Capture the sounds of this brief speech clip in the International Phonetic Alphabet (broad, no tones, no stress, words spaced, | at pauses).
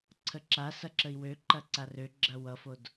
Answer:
ǀʰəǁa sɐǁəi̯wø ǃɐǀarø ɡ͡ǁɐwʌfod